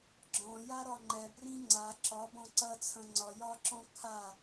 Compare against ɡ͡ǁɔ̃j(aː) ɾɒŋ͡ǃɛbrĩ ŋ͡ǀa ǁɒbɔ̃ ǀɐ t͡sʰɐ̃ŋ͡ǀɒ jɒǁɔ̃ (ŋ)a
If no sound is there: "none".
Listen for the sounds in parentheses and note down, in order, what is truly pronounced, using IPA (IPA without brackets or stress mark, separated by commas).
a, kʰ